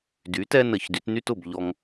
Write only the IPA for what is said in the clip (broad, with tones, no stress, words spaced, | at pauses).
dy˩˥ tɛ˥nə˨˩˦çdy˩˥tny˥t ʊ˥˩bʎɔ˧ŋ